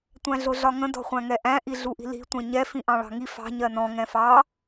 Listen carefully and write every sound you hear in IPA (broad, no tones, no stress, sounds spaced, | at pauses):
tʷ æ̃ ɮ ʊ ɮ ɒ ŋ ə̃ d ɔ̤ χʷ æ̃ ŋ ɛ ʔ æ̃ ʔ i ɮ u ʔ i̤ l i̤ tʷ ɛ̃ ɲ ɛ f ĩ ʔ ɑ̃ ɭ ɑ̤ ŋ i f ɑ̤ ɲ ɜ n ɔ̃ ŋ ɛ̃ f ɑ